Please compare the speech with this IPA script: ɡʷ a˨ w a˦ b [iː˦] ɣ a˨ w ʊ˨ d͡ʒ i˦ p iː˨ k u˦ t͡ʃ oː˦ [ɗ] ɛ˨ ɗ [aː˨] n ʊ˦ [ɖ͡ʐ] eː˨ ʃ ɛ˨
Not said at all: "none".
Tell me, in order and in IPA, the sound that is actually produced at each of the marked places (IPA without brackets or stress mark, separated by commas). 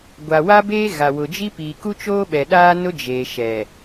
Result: eː˦, ɓ, aː˦, d͡ʒ